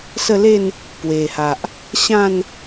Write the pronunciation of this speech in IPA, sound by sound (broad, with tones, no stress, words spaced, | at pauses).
sə˥˧le˥˧n | pwe˨˩ha˨ʔ | ɕã˥˧n